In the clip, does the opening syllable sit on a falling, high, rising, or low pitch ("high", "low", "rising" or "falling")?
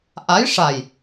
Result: rising